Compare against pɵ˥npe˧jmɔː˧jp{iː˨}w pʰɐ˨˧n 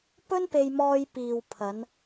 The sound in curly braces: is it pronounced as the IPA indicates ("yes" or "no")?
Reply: yes